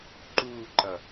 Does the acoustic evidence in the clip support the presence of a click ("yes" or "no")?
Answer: yes